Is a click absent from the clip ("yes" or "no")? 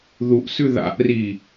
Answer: yes